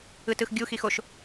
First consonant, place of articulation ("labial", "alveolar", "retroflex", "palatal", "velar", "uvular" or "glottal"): alveolar